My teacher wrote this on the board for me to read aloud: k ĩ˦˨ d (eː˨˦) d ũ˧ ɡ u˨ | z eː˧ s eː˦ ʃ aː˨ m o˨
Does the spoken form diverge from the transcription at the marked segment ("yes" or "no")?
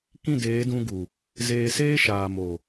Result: no